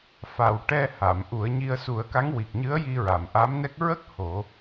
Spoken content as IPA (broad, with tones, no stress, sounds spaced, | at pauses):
f a˨˩ w ʈ ɛ˧ h a˨˩˨ m ʔ u˨˩˦ ə̯ ɲ i˧ ə̯ s u˨˩˦ ə̯ k a˧˥ ŋ w i˨˩ k̚ ɲ ɨ˧˥ ə̯ j i˧ ɹ a˨˩˨ m ʔ a˧˥ m n ɛ˦˥ k̚ ɹ ə˦˥ k̚ h o˨˩˦